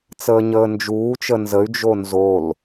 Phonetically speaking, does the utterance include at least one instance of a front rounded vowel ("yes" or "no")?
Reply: yes